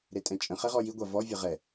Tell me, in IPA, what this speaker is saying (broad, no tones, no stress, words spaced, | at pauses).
ɾetʼɛ̃t͡ʃʼə̃χɛ ʁɔjiɡʷa vɔvʲə ʁɛ